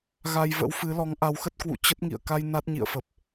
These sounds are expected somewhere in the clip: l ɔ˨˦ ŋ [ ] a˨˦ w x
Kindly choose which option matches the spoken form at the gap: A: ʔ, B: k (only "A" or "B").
A